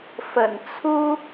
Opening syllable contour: low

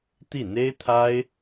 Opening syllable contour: falling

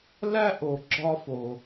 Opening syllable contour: high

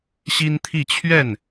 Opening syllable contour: high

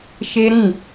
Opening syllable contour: high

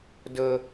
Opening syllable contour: low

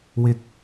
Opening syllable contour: high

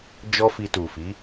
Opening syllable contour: high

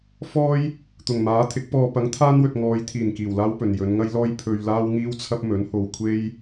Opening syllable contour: high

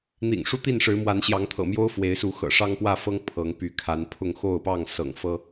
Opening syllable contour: low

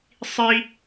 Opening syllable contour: high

